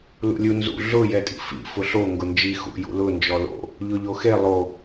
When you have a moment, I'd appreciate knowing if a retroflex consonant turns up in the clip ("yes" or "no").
no